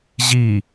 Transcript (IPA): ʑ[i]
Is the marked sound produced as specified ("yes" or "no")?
yes